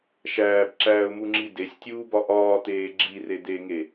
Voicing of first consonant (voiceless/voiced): voiceless